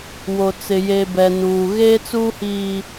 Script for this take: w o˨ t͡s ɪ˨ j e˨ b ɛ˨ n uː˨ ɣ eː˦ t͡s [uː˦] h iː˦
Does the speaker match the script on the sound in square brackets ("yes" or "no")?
yes